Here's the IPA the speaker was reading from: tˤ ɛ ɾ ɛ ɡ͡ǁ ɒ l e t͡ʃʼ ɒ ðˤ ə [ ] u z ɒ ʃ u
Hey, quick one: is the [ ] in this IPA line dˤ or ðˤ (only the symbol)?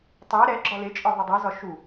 dˤ